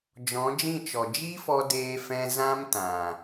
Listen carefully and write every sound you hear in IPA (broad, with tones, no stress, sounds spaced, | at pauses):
d͡ʒ ɔ̃˨˦ d͡ʒ ĩ˦˨ t͡ʃ ɔ˨ d͡ʒ i˦ f ɔ˧ d eː˧ f ɛ̃˧ z ã˦ m t ã˨